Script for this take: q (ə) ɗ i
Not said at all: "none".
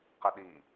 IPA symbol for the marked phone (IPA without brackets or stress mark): ə